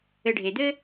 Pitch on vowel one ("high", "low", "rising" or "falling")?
low